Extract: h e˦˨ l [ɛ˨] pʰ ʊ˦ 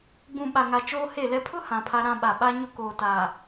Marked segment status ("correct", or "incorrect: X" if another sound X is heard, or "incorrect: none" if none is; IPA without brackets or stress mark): incorrect: ɛ˦